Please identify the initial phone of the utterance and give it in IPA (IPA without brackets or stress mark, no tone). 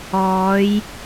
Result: ɔː